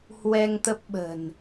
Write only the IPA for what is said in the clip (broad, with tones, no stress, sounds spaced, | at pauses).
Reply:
h w ɛ˧ ŋ t̪ ə˦˥ p̚ ɓ ə̤˨˩ n